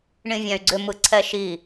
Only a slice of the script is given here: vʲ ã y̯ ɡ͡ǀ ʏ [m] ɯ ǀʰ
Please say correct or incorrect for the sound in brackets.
correct